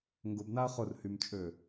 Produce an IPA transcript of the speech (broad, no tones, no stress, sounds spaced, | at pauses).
ŋ ɡ ʊ b n a ɐ̯ χ ʊ r h y m t͡ʃʼ ø